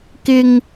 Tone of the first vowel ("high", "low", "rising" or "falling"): high